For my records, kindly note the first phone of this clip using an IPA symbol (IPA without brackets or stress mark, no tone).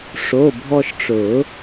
ʂ